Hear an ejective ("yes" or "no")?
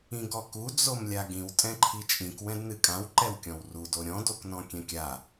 yes